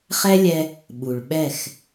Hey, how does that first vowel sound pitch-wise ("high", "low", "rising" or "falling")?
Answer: high